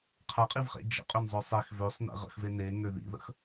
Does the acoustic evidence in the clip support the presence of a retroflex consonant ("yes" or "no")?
no